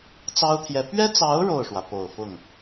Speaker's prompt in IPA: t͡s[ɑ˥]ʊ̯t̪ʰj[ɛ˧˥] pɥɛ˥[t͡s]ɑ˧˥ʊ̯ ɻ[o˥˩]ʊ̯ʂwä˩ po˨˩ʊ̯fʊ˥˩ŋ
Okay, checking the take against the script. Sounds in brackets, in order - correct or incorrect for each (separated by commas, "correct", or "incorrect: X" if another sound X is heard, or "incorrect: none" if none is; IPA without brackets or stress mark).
correct, correct, correct, correct